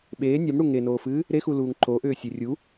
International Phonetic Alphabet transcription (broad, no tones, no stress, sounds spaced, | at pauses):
ɓ eː nʲ a m ɽ u ŋ e n oː f ɨː | ɾ e x u l uː ŋ ǃ o ʔ ʏː sʲ e rʲ u